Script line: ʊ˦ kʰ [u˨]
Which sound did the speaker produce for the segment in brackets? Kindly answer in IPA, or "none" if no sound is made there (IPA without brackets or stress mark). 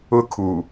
u˨